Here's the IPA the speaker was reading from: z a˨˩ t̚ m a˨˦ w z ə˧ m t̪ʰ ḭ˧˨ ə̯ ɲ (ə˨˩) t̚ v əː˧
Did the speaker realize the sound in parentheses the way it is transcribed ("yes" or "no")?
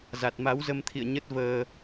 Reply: no